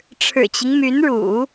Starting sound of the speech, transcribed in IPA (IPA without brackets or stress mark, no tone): ʈ͡ʂʰ